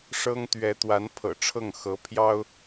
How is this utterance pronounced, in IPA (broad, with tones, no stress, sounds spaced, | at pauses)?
ʂ ɤ˥ ŋ t̪ ɥ ɛ˧˥ t̪ w a˧˥ n pʰ ɤ̰˨˩ ʈ͡ʂʰ ɤ˥˩ ŋ x ɤ˧˥ pʰ j ɑ˥ ʊ̯